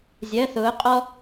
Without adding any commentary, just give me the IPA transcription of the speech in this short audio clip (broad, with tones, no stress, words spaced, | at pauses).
zʲɜ˧˥˧θʊː˧˥qʼɔ˥